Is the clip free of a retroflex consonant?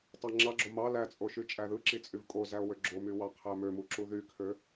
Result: yes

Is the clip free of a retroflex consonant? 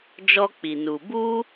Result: yes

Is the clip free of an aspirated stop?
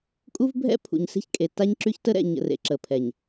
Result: no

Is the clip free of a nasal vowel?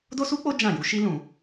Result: no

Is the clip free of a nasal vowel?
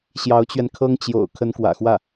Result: yes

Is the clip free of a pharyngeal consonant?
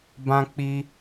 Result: yes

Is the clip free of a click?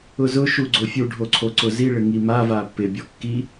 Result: no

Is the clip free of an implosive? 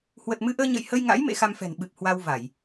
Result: no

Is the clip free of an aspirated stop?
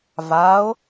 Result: yes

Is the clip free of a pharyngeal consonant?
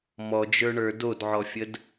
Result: no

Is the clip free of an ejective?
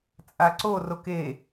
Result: no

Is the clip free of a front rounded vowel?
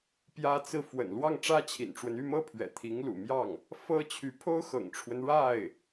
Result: no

